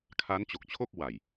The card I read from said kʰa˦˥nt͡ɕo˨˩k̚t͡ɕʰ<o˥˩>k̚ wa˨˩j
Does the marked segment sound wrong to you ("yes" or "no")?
no